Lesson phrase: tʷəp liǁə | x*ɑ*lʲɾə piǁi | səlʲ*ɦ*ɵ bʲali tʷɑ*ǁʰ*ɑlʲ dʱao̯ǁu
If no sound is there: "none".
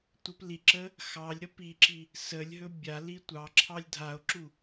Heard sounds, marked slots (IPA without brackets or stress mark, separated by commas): ɑ, ɦ, ǁʰ